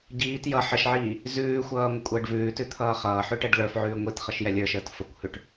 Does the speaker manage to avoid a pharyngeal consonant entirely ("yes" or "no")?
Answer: no